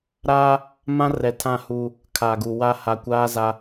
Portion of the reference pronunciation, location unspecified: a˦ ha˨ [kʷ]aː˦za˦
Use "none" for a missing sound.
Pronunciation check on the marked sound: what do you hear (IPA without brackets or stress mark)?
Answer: kʷ